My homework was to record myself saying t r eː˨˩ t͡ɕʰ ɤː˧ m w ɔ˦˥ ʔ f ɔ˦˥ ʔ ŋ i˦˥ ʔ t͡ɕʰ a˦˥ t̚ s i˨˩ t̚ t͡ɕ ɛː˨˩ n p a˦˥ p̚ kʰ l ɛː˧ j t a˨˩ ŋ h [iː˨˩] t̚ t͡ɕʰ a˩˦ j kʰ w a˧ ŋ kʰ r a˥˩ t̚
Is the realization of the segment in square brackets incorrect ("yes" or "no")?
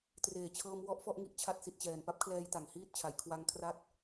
yes